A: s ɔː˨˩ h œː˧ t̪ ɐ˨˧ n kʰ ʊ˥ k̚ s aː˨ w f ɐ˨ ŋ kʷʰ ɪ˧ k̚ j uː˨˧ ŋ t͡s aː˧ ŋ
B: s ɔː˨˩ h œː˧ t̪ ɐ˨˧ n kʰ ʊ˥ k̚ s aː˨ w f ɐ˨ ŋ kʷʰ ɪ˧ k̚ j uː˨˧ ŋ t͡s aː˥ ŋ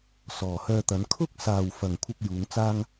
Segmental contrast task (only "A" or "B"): B